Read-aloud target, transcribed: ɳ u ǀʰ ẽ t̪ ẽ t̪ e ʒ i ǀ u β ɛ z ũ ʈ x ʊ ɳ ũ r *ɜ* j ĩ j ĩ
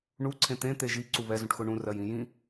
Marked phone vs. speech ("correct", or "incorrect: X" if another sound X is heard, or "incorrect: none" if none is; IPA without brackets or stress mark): correct